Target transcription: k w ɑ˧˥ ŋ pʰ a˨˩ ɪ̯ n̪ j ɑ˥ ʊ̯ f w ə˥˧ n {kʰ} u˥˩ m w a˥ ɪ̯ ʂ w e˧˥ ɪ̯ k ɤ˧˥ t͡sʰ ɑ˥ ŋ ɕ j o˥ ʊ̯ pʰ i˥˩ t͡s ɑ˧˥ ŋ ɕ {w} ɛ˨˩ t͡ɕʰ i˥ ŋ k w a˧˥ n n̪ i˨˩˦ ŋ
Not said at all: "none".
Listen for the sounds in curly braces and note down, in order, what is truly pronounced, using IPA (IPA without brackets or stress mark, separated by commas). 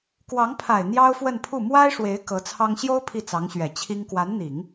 pʰ, ɥ